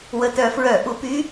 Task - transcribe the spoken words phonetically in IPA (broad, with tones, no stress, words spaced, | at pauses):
wə˨˩tœ˧˩˧fɹœ˧˩˧ ʔu˧˩˧py˦˥